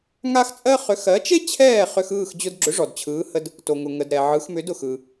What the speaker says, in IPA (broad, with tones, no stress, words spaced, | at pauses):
ŋa˥xt͡sʼɜ˥ χʏ˩˥xɜ˩˥t͡ʃe˥ t͡ɕʰɛː˥˩ χʏ˧xɯː˥˩x d͡ʑʊ˧dɡ͡ǁʏ˩˥ ʐɔ˩dt͡ɕʰɯː˩˥hə˧d | to˩ŋʊ˩ ŋə˩dɾɛ˩ ʕɯ˩˥xmʏ˩˥dʊ˩x ɯ˩